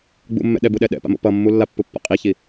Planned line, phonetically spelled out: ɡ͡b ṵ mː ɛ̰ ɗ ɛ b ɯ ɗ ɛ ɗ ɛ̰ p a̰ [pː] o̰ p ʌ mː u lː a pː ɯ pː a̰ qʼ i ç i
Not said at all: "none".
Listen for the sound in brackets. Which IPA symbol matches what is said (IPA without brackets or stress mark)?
m